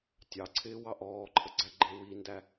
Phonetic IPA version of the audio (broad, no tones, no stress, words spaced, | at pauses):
tʲɑǀʰɪː wɑʔɔːǃʰə ɡ͡ǀæɡ͡ǃɪːwindæ